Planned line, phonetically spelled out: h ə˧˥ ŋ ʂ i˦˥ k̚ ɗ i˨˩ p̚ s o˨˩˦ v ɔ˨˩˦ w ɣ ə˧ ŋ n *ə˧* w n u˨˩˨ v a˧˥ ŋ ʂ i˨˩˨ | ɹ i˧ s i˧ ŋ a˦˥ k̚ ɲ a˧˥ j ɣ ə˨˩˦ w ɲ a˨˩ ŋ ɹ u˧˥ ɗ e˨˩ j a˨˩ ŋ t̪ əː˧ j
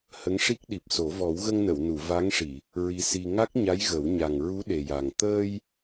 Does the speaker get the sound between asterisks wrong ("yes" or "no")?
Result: yes